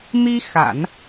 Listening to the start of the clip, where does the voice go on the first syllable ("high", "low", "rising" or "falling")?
high